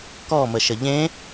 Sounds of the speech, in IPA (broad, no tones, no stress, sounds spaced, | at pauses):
k ɔ m ə ʃ ə ʎ ẽ